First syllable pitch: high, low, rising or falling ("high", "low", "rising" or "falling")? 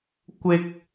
high